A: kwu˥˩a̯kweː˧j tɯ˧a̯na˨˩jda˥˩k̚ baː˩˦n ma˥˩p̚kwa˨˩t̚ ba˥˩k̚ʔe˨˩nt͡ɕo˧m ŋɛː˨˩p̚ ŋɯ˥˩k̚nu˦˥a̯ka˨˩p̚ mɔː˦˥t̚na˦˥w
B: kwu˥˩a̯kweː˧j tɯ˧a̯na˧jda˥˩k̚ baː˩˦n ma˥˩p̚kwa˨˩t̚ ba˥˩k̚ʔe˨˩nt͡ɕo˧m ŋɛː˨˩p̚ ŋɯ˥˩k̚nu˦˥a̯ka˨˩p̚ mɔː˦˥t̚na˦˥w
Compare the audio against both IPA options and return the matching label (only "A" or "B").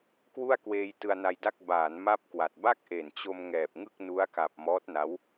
B